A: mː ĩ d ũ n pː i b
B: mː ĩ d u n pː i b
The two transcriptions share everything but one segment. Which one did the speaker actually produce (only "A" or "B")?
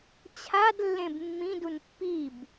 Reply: B